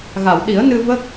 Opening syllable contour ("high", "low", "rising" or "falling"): low